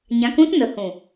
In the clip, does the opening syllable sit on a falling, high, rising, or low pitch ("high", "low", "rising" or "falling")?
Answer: rising